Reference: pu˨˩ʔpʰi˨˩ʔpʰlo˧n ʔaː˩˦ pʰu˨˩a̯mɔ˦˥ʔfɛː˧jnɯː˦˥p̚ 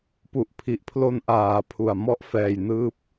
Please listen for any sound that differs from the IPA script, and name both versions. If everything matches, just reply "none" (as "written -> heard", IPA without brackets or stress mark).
none